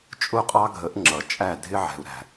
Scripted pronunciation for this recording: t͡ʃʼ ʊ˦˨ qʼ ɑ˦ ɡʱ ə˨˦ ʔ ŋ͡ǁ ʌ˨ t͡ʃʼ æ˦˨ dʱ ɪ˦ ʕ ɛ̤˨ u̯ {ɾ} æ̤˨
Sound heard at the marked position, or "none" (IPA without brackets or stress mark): ɾ